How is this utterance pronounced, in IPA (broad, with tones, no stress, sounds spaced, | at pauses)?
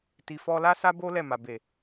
t i˨ f ɔ˧ l a˦ s a˦ b o˦ l ɛ˦˨ m a˨ b e˨